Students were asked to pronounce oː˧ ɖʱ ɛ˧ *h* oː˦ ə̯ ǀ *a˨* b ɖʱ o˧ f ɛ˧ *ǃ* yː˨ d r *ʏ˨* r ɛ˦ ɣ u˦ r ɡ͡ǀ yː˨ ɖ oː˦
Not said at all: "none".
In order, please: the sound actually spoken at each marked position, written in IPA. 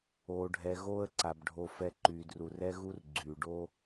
ɣ, a˨, ǃ, u˨

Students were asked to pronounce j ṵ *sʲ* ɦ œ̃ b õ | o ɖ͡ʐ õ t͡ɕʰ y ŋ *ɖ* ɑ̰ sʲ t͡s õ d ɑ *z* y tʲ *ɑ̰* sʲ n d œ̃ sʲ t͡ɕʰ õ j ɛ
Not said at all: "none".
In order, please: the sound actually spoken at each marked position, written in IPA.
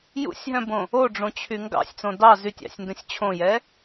sʲ, ɡ, z, ɑ̰

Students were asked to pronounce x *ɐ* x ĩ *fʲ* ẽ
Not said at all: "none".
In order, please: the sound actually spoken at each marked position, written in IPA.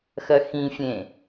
ɐ, fʲ

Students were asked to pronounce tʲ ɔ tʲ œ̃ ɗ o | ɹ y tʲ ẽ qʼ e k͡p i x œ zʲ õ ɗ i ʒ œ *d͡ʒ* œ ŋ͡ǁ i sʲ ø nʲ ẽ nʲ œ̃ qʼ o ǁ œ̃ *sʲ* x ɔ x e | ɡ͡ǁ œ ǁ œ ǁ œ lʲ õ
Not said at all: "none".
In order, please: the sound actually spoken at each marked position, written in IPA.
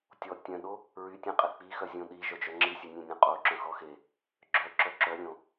d͡ʒ, none

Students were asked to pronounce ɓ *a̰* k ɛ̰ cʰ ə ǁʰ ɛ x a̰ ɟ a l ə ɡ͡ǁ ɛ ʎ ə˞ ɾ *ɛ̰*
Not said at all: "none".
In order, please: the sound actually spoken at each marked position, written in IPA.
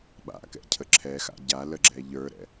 a̰, ɛ̰

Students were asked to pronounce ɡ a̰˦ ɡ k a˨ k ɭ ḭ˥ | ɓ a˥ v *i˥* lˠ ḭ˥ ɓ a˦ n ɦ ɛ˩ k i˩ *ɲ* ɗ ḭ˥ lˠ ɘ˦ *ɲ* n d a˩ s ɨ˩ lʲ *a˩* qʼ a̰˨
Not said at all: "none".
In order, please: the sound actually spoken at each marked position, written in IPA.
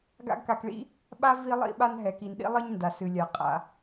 i˦, n, ɲ, a˩

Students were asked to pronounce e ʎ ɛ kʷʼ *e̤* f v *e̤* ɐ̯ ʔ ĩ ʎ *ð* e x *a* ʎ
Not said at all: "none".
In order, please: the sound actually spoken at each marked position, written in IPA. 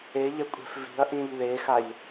e̤, i̤, ð, a

